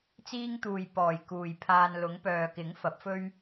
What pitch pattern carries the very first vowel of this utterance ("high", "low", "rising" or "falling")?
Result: high